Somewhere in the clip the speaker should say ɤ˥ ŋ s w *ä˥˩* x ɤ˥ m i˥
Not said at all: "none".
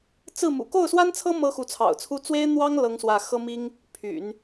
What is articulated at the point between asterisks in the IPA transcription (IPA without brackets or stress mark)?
ä˥˩